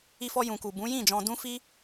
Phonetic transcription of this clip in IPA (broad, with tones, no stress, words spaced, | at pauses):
i˧fɔ˧ jũ˨ku˨ bũ˨˦jĩ˦˨d͡ʒɔ̃˧ dũ˦fi˦